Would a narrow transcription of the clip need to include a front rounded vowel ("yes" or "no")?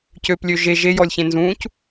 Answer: yes